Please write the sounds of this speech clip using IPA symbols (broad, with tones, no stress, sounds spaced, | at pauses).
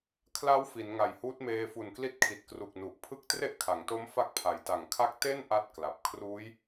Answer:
kʰ l a˦˥ w f i˩˦ n ŋ a˨˩ j h uː˦˥ t̚ m eː˧ f u˨˩ n k l i˦˥ t̚ kʰ i˨˩ t̚ k r u˨˩ k̚ n u˨˩ ʔ pʰ ɯ˦˥ k̚ t r e˥˩ ʔ kʰ a˩˦ ŋ t o˦˥ m f a˦˥ k̚ pʰ a˩˦ j t a˨˩ ŋ kʰ a˥˩ k̚ t e˥˩ n ʔ a˥˩ t̚ k l a˨˩ p̚ kʰ r uː˦˥ j